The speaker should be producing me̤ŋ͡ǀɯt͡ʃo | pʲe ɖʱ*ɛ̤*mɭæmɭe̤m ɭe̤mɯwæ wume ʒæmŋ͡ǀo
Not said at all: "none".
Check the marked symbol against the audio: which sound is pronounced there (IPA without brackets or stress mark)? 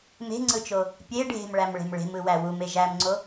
e̤